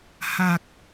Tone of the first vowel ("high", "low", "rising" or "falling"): low